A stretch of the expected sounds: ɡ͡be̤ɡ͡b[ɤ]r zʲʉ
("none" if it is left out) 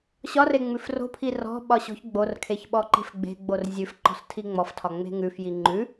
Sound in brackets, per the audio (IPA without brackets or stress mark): o